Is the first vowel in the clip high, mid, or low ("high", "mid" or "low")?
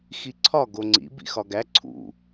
high